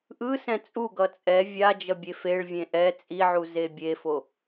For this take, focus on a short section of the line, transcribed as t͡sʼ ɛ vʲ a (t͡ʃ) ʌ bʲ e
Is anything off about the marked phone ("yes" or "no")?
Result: yes